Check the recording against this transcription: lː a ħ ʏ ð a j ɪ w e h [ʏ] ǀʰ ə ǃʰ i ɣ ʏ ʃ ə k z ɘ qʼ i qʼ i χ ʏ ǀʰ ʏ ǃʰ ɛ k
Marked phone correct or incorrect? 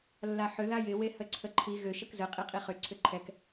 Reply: incorrect